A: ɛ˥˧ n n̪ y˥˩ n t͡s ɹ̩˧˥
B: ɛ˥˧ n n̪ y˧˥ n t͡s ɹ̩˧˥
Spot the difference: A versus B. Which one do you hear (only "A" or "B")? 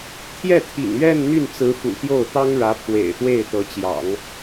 A